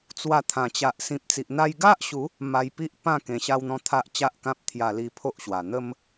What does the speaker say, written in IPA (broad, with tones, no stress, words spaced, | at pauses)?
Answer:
t͡swa˧t̪ʰã˨˩t͡ɕa˨ʔ sĩ˨p̚t͡si˨ʔn̪a˧j ɡa˦ʔɕu˨˦ | ma˧jpi˦ʔpã˥˧ kẽ˨˩ɕa˧wn̪ɔ̃˧ t̪ʰa˦ʔt͡ɕa˦ʔkã˦p̚ t̪ʰja˧li˧pʰo˦ʔɕwa˨˩ n̪ə˦m